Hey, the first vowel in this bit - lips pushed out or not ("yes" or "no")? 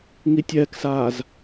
no